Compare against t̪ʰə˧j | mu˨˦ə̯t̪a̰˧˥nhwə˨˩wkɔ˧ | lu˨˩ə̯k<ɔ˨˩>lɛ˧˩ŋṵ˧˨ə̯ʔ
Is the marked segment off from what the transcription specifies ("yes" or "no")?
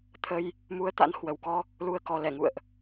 no